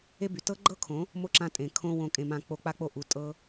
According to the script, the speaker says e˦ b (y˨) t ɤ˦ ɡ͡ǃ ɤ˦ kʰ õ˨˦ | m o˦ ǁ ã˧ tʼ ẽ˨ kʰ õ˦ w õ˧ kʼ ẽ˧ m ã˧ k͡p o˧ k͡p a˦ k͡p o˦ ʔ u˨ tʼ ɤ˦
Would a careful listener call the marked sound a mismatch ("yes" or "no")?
no